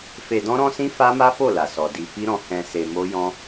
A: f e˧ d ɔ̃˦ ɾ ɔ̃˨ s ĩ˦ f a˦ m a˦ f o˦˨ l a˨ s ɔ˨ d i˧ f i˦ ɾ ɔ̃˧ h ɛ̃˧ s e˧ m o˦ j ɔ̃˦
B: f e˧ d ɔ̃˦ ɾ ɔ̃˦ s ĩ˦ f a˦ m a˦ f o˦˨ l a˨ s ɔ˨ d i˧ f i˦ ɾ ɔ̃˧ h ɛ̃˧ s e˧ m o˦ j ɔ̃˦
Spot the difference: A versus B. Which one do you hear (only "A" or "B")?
B